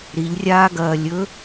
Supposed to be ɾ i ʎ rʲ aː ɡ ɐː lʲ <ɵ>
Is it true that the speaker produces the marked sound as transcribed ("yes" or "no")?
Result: yes